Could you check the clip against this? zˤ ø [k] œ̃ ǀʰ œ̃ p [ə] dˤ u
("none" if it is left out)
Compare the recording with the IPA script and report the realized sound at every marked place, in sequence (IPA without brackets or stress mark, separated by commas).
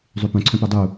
p, ø